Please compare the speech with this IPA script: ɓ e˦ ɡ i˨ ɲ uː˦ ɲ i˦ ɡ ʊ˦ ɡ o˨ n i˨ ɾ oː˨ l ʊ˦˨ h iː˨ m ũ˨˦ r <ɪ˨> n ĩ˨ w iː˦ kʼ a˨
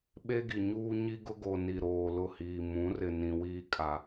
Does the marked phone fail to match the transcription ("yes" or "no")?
no